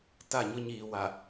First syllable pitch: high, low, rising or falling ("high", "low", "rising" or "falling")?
falling